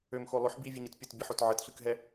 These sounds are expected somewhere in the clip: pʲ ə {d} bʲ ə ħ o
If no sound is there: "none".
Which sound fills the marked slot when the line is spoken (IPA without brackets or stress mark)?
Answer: t